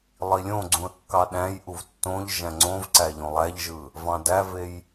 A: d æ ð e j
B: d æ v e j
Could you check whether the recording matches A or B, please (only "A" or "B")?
B